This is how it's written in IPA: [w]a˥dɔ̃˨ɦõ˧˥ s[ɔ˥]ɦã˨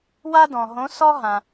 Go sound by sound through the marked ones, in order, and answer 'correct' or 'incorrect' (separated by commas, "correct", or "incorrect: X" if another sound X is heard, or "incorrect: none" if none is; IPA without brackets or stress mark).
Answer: correct, correct